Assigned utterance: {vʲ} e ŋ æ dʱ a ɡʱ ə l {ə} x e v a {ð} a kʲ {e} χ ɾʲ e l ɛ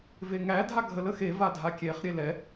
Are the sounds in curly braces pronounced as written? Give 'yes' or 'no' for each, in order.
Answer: no, yes, no, yes

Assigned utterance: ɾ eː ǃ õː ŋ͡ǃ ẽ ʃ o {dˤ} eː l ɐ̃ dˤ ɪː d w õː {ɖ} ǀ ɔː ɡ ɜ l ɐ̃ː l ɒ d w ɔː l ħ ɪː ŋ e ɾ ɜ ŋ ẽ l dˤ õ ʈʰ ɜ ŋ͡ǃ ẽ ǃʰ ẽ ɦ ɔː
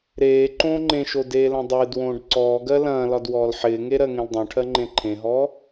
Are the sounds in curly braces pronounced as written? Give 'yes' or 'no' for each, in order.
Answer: no, yes

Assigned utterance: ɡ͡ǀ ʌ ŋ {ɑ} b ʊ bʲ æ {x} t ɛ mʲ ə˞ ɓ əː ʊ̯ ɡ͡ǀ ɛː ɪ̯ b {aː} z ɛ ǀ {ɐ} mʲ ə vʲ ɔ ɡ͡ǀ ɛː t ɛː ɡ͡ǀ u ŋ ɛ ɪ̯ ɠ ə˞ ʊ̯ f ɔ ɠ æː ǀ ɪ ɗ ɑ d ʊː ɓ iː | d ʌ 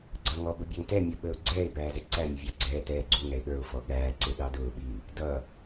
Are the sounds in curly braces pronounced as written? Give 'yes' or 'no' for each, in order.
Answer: no, no, no, no

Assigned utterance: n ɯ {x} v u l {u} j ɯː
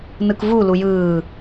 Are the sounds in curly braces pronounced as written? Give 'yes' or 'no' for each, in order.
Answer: no, yes

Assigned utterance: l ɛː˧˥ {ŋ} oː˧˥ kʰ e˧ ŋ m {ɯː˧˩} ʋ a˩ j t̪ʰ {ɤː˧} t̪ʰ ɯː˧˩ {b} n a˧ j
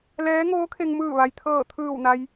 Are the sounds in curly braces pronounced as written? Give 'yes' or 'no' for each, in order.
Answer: yes, yes, no, no

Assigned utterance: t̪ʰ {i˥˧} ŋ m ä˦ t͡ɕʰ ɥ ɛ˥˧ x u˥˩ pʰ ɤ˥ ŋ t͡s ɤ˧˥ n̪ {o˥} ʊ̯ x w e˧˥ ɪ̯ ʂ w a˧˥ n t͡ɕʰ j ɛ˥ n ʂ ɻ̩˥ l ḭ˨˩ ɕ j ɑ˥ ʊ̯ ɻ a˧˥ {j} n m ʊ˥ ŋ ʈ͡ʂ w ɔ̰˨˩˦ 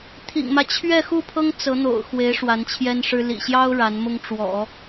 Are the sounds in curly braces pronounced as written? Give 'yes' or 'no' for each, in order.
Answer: no, no, no

